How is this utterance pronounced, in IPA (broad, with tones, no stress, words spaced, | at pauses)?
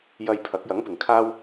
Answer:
jɐ˧j pʰɐ˨˥k̚jɐ˨˥ŋpɪ˨ŋ kʰaː˥w